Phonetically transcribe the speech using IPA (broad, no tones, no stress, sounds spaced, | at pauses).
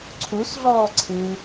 ǀʰ u s ɮ ɔː ǀʰ ɨː